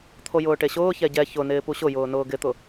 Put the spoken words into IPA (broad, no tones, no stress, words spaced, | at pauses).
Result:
t̪ʰojʊːʈeɕʊː çɛɟɛ çʊ nɪːpuɕʊjʊː nʊːɡɪt̪ʊ